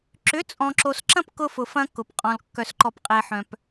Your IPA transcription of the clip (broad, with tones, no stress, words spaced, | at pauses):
ǁʏ˨˦t͡sʼɔ̃˨ǁo˨sǁɐ̃˦p kʊ˦fʊ˨fɐ̃˦ kʊ˨pqʼɔ̃˨l kːœ˨sǃɔ˨pqʼe˨ħœ̃˨p